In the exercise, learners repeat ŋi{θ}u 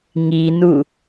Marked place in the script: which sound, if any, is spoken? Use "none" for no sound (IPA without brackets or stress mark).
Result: n